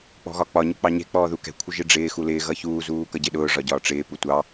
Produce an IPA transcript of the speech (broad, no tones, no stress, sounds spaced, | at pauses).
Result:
k͡p ɔ̤ ɣ ɒ k͡p ɒ ɲ ʊ k͡p ɑ ɲ ɛ̤ k͡p ɔː ð u k ɛ̤ kʷʰ ɪ ʒ ɪ ɖ͡ʐ ɪː x u l ɪː ɣ ʌ ç uː z uː k ʌ ɟ ɪ ɗ ʊː ʐ ɒ ɟ ɒː ʈ͡ʂ ɪː p u tʷ ɑ